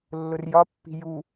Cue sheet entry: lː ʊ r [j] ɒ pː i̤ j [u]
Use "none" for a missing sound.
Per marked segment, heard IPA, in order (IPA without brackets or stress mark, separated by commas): j, u